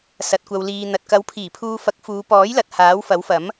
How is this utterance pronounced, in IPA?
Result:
s ɐ˨ t̚ kʷ ɐ˨ w l iː˨ n̪ ɐ˨ t̚ k ɐ˨˥ w pʰ iː˨˩ pʰ uː˧ f ɐ˨˥ k̚ f uː˨˧ p ɔː˨˥ j l ɐ˨ t̚ h aː˨˥ w f ɐ˨˥ w f ɐ˨˥ m

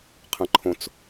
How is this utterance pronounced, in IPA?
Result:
qʰ ɐ̃ ǃʰ õ t͡s

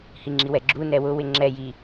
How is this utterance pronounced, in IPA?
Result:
h i ŋ͡ǁ i w ɛ ɡ͡ǁ u n ɛ w ʊ w ɪ ŋ͡ǁ ɛ j i

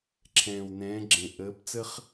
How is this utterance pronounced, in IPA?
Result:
ǁʰ ɛ̃ː˨˩ w n ɛ̃ː˨˦ ɡ͡ǁ ẽ˨˩ ʔ əː˨˦ p t͡s ə˥ χ

